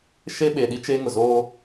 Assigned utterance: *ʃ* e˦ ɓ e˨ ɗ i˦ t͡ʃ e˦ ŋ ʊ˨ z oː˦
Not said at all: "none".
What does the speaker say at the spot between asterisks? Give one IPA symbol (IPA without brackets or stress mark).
ʃ